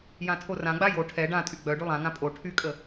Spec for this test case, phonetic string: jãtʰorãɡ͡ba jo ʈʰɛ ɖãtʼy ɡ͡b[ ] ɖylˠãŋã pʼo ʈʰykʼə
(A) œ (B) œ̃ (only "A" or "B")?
A